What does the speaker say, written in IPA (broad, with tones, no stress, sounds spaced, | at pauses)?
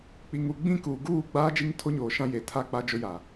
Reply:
k͡p i˨ ŋ u˨ ɡ͡b ĩ˦˨ k uː˨ ɡ uː˦˨ ɡ͡b aː˦ d͡ʒ i˦ ŋ tʰ o˦ ɲ oː˨ ʃ ã˦ j e˨ tʰ a˦ k͡p a˦ d͡ʒ ʊ˦ j a˨